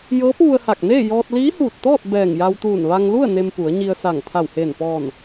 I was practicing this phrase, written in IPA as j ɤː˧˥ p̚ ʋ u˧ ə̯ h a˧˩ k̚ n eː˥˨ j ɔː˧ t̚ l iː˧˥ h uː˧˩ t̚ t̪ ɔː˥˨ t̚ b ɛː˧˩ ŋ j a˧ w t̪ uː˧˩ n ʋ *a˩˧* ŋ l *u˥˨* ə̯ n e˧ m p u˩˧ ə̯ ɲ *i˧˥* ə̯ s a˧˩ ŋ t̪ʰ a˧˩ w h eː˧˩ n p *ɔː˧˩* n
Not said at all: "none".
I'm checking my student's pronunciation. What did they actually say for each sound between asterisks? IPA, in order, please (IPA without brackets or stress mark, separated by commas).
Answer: a˧, u˥˨, i˧, ɔː˧˩